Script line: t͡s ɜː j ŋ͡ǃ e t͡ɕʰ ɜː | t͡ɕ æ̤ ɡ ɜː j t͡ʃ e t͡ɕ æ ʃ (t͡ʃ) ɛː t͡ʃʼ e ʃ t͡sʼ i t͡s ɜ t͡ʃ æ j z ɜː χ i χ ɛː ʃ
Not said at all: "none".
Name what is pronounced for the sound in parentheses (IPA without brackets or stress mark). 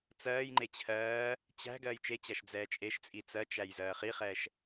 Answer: d͡z